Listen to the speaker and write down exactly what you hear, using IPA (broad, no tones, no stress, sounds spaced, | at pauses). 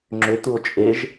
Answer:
ŋ͡ǁ ʏ t̪ u o̯ t͡ʃʼ e ʒ